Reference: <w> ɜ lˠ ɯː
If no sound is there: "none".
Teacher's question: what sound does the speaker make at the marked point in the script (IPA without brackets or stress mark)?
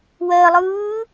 w